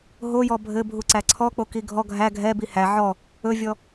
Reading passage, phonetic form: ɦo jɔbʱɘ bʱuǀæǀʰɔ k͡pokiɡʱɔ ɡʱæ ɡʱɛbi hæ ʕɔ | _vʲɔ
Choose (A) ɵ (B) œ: A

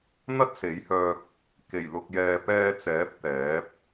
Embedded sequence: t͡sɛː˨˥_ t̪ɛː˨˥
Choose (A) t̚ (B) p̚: B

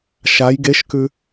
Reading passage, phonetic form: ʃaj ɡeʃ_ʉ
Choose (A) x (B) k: B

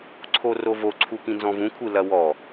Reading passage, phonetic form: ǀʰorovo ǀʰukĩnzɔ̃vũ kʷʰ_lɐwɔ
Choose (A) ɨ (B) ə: A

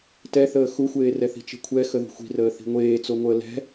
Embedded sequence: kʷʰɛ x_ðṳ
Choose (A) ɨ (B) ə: B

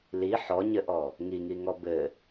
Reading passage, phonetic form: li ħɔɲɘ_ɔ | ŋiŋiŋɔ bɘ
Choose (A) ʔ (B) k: A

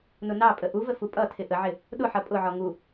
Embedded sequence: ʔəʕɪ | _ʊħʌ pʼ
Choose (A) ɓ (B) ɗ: B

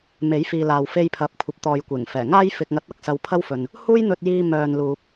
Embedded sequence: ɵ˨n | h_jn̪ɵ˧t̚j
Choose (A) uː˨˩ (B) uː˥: B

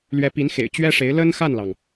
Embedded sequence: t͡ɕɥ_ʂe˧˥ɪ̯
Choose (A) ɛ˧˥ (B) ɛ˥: B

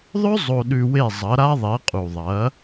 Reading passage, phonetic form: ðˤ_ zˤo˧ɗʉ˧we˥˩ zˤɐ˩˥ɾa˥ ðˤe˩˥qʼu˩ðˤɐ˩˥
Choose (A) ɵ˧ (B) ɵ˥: B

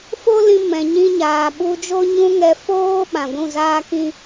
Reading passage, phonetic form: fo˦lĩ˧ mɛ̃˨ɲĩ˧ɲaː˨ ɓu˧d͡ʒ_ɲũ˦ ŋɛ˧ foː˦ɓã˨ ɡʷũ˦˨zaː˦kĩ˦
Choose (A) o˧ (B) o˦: B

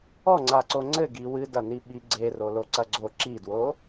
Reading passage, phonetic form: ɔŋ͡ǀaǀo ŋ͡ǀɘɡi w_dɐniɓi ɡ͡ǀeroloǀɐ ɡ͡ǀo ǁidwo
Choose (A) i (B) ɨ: B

